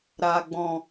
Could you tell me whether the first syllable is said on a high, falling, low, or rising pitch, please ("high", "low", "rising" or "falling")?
low